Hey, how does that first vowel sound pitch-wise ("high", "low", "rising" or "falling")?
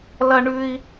high